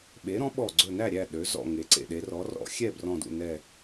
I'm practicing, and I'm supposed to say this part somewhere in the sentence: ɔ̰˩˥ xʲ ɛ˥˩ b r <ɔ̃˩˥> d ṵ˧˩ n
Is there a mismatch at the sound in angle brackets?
yes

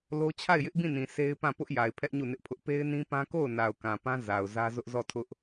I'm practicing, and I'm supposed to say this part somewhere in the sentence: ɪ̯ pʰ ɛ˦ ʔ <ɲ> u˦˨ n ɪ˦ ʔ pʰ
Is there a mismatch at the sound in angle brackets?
no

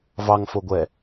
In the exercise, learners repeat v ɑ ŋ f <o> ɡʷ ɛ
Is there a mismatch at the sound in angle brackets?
no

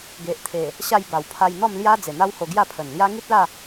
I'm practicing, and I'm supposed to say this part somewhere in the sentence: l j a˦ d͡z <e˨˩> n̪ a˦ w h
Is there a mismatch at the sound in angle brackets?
no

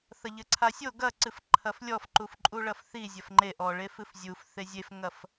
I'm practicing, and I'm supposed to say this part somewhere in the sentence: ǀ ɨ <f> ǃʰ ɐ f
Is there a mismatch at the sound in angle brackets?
no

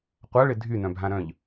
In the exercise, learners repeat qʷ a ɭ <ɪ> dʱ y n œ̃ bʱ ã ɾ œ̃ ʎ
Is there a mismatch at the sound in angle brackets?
no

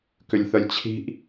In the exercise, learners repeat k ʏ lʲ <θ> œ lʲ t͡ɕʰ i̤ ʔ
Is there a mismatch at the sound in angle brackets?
no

